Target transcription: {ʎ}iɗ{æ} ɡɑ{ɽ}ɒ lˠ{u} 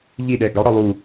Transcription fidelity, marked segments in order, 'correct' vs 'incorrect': correct, incorrect: ɛ, correct, correct

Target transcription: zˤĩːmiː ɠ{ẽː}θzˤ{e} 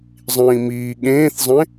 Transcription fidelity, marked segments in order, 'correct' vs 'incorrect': correct, incorrect: ẽ

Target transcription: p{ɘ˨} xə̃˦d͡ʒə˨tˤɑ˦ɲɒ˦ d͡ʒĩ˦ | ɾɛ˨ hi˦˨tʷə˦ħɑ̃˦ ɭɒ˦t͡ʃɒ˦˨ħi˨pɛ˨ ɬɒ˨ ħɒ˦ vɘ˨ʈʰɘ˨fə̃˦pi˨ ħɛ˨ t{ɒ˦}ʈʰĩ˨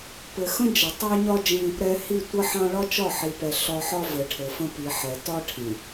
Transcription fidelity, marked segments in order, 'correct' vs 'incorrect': correct, correct

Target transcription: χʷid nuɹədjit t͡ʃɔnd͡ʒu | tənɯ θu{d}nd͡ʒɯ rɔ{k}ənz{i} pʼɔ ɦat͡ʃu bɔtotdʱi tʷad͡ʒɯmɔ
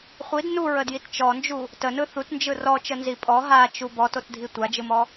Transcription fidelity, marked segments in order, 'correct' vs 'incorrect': incorrect: t, incorrect: t͡ʃ, correct

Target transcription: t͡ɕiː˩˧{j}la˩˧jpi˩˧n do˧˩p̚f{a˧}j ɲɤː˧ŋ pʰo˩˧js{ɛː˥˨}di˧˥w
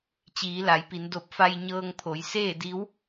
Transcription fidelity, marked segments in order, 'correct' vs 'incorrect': incorrect: none, correct, incorrect: eː˥˨

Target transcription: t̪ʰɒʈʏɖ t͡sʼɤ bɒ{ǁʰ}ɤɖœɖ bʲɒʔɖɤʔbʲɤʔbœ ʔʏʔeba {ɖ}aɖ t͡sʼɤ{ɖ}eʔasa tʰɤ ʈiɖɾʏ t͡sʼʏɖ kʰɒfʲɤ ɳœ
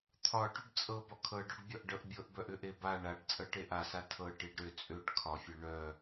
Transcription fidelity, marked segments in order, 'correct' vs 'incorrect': incorrect: kʰ, incorrect: ɳ, incorrect: ʈ

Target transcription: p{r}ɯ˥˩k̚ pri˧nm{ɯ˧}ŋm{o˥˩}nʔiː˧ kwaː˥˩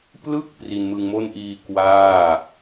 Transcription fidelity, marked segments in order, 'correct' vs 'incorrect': incorrect: l, correct, correct

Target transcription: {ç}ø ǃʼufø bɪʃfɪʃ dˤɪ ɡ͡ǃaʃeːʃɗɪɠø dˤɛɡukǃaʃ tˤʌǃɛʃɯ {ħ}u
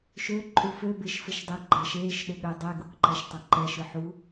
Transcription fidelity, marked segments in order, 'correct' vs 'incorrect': incorrect: ʃ, correct

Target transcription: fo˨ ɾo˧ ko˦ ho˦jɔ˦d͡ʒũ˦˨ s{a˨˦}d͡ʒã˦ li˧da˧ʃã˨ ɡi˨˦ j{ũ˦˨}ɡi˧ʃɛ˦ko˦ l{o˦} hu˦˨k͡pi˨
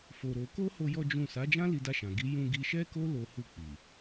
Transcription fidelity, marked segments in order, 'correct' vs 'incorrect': correct, incorrect: ũ˧, correct

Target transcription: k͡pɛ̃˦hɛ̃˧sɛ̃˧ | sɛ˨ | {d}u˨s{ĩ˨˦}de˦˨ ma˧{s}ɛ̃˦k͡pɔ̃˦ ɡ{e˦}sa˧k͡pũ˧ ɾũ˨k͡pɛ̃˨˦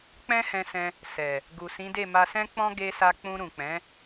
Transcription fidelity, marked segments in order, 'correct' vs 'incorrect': incorrect: ɡ, correct, correct, incorrect: e˧

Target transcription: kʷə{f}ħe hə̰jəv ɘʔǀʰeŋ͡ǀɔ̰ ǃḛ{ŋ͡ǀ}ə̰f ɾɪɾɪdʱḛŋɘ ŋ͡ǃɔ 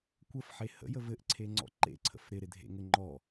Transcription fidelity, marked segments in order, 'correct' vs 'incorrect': correct, incorrect: ǀʰ

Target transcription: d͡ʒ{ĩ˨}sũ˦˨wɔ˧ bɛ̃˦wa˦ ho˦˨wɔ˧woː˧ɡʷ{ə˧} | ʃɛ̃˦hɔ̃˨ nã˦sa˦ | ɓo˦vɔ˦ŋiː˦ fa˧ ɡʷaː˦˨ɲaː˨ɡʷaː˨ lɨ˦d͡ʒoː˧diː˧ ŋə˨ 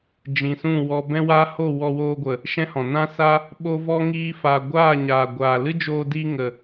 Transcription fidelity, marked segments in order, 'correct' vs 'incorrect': correct, incorrect: ə˨

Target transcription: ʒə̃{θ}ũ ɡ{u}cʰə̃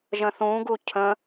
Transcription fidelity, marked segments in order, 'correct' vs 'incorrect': correct, correct

